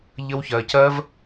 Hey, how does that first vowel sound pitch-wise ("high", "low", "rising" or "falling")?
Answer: high